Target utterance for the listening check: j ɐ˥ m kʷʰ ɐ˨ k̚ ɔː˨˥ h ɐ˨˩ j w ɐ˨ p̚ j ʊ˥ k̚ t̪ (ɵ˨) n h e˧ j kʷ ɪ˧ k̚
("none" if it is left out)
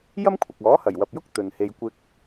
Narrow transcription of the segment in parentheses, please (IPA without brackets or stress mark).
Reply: ɵ˨